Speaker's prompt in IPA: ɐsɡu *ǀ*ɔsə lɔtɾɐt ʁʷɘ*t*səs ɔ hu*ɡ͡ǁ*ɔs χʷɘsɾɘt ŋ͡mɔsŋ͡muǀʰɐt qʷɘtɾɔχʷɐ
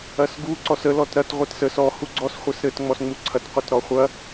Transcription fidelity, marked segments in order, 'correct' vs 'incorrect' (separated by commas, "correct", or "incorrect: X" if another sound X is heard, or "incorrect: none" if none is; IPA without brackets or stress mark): correct, correct, incorrect: ɡ͡ǀ